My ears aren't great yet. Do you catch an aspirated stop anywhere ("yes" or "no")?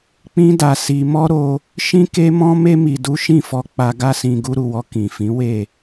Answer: no